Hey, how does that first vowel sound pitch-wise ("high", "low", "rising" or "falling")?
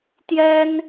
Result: high